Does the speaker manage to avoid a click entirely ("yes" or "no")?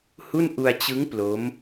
yes